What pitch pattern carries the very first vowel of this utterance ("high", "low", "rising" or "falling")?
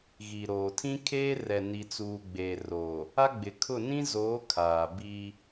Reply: low